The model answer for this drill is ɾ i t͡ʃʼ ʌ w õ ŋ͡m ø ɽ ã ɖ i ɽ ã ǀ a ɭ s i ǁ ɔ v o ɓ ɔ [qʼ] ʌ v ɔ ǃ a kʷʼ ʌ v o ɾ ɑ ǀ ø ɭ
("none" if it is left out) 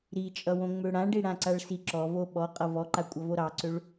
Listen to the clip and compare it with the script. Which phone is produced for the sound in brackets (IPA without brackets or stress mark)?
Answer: qʼ